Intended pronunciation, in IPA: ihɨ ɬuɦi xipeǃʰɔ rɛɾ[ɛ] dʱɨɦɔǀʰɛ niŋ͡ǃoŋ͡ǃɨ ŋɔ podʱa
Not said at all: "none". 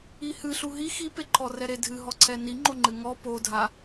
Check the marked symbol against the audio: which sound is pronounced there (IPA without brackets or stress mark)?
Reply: e